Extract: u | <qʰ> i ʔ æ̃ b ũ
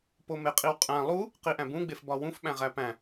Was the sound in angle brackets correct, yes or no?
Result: no